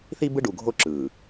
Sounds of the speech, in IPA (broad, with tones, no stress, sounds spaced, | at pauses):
θ i˦ b ɯ˦ ɖ u˨ ɡʱ o˦ ǁ ɯː˨